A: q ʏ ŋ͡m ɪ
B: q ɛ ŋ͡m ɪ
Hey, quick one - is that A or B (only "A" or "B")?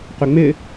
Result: A